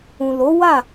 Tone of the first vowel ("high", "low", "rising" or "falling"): low